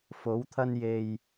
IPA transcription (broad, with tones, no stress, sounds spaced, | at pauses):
f o˨˥ w t̪ʰ ɐ˥ n j e˧ j